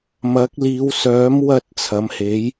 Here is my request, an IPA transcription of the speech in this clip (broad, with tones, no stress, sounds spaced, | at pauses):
m ɐ˨˥ k̚ l iː˨˧ w s œː˨˥ m w ɐ˧ t̚ t͡sʰ ɐ˨˥ m h e˨˥ j